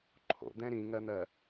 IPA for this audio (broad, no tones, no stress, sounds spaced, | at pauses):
ǃʰ o̰ d̪ ɛ̃ ɾ ĩ ŋ ɜ n̪ ɜ